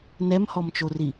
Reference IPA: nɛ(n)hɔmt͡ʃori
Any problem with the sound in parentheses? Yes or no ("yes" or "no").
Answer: yes